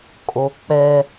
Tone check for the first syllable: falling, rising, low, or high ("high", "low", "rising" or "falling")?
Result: low